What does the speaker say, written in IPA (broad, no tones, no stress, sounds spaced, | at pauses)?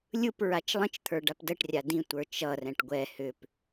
lʲ ɯ p ɹ a t͡ʃ lˠ ə̃ t͡ʃ t̪ʰ ə˞ ɖ a p d ə ʈ rʲ a d ĩ tʷ ə˞ t͡ʃ ʌ r ɛ̃ ʈ ɡʷ ɛ h ʏ p